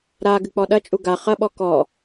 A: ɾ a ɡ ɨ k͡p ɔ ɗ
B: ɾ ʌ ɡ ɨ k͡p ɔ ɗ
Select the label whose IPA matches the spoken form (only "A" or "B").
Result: A